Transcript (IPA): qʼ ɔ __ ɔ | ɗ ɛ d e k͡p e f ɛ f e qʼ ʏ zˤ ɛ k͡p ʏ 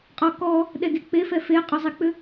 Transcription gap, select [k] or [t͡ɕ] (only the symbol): k